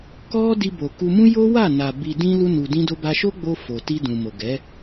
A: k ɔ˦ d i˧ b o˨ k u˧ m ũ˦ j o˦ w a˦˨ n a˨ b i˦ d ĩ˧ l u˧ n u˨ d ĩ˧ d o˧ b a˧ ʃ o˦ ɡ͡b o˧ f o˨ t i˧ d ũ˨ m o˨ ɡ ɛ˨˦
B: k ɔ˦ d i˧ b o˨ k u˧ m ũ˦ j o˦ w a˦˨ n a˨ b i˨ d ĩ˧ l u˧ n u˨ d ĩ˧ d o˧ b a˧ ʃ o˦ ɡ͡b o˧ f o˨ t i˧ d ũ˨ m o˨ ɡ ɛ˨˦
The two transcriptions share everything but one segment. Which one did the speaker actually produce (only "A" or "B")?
B